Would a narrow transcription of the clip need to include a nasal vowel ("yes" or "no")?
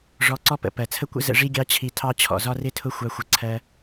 no